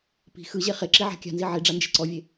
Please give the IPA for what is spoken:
pi̤ xɯʑe χeǁiʕa̤ kʲa̤nzi ʕiɖ͡ʐand͡ʒe̤ ǀɔvʲe

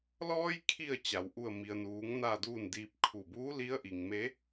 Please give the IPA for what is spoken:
lɔː˧jkʰi˧˩ə̯ t͡ɕa˩˧wʔu˥˨ə̯ mi˩ə̯nuː˩˧ŋ na˥˨duː˥˨ndiː˧p̚ kʰu˧˩ buː˧˥li˧˥ə̯ʔi˩ŋme˧˥

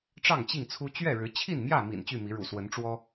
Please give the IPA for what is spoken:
ʈ͡ʂɑ˥˨ŋt͡ɕi˥˨ŋt͡sʰu˦ t͡ɕɥɛ˥˨ɻɻ̩˨˦t͡ɕʰi˥˨n mjä˥˨mḭ˨˩n t͡ɕy˥˨mi˨˦ ɻṵ˨˩swə˨˦nʈ͡ʂwɔ˦

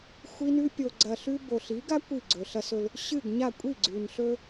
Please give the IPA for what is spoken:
xʷi˦nʉ˦ pʲo˨ɡ͡ǀɐ˨ ɬʉ˦ bo˨ɬi˨˦ɡa˦ kʷi˦˨ɡ͡ǀɵ˨ɬɐ˦sɵ˦l | ɕɨ˦˨ɡ ɲa˦˨ kʷʼi˦˨ɡ͡ǀʉ˨nɬɵ˦

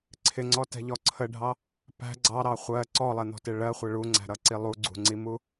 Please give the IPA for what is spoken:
ǀʰɪŋ͡ǀɔtɛ̤ʎɔ ǀʰəɖʱɑ | pæ̤ ɡ͡ǀɑɾɑ χʷɜ ǀɔlˠɛn̪ɔ̤tɪ ɭɜχʷɪ ɭuŋ͡ǀæ̤ɾʌǀi lˠuɡ͡ǀṳŋ͡ǀimu

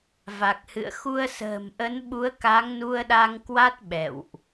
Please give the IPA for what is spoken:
va˨˩k̚hɨ̰˧˨ə̯ xu˧ə̯sə̤ː˨˩m ʔə˨˦nɓu˨˦ə̯ ka˨˦ŋnu˧ə̯ɗa˧ŋkwa˦˥t̚ ɓɛ̰˧˨wʔ

